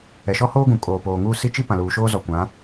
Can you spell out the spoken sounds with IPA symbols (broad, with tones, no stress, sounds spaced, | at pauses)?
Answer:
ɛ˨ ʃ ɔ˦ h oː˦ ɡ ũ˨ kʼ oː˨ p oː˨ ŋ uː˦ s i˦ t͡ʃ i˦ p ã˨ l uː˨ ʃ oː˦ z ɔ˨ kʷ ã˨˦